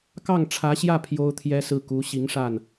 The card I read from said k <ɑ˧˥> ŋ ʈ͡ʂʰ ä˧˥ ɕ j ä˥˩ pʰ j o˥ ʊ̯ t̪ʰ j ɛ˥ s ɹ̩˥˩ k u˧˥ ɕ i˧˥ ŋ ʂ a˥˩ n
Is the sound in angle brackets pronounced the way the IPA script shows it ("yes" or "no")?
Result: no